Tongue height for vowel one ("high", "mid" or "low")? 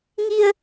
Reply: high